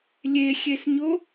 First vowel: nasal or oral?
oral